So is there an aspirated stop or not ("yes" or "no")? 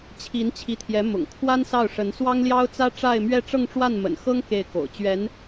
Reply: yes